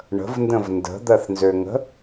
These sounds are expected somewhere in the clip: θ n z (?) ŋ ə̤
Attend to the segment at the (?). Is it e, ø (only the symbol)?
ø